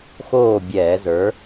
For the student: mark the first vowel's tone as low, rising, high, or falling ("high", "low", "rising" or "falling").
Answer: falling